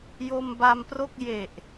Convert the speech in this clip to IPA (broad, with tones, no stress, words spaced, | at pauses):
jo˧mba˧mpro˥˩k̚ je˨˩ʔ